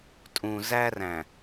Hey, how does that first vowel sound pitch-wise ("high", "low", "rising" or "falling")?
low